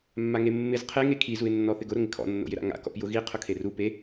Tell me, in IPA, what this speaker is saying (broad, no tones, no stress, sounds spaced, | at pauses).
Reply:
mː a ŋ e mː ɪ z qʰ e ŋ e kʰ i z u ɪ̯ nː ɔ θ ɪ ɡ ʊ ɾ ʊ ŋ ɪ kʰ ɔ̰ nː o̰ j ɪ ɾ a̰ ŋ a̰ k ɔ̰ p j ʊ ɣ i qʰ ʊ kʰ e r u p e